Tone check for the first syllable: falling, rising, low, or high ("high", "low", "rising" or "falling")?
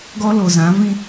high